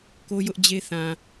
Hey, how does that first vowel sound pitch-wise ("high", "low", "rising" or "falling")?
high